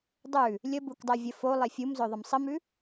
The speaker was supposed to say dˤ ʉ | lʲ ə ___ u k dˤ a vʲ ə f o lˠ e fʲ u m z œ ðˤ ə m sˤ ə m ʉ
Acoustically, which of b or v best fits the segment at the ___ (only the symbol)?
b